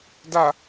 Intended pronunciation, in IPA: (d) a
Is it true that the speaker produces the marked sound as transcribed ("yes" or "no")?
yes